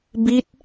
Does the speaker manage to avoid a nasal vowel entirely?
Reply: yes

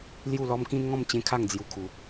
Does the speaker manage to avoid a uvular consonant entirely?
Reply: yes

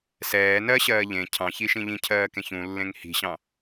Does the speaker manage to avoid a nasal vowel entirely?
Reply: no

